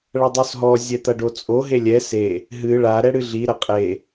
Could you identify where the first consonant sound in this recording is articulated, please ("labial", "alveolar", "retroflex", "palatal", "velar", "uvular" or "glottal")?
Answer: retroflex